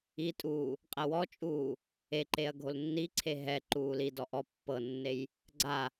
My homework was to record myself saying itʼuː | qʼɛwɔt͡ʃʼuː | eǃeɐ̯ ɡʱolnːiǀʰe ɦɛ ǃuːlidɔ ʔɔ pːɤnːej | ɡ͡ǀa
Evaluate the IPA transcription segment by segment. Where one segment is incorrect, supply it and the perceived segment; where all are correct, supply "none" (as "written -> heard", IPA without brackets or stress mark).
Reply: none